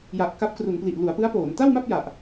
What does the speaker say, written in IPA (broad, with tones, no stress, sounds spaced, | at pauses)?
j a˨˩ ʔ k a˦˥ p̚ k r u˩˦ n p l i˨˩ ʔ l u˩˦ a̯ p ɯ˦˥ a̯ p oː˩˦ n t a˥˩ w m a˥˩ p̚ j a˨˩ ʔ